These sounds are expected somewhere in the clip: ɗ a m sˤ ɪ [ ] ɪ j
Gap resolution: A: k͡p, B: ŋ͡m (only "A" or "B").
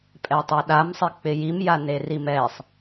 A